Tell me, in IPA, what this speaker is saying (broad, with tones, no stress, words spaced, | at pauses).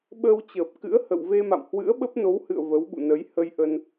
ɓəː˧wt͡ɕəː˨˩p̚ kɨ̰˧˥ə̯hə̰˧˨w ve˧ma̰˧˨mhwɨ̰˧˥ə̯ ɓə˦˥p̚no˨˦whɨ̰˧˨ə̯ və˨˦wɓṵ˧˨nə˨˦j hə˧jʔə˧n